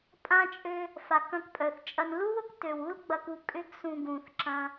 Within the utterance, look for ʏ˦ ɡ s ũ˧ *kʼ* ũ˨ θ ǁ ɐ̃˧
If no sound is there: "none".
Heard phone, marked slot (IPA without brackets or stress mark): ɡ